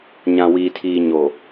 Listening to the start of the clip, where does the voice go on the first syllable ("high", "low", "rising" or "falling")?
low